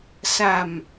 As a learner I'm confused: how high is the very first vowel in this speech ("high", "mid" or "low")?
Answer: low